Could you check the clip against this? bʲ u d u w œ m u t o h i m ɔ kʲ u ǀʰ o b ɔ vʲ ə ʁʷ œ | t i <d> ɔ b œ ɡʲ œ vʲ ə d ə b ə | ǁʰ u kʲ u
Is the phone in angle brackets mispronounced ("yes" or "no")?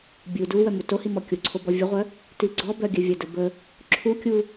yes